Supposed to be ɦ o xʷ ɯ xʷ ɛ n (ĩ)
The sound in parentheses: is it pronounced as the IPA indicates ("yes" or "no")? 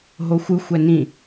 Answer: yes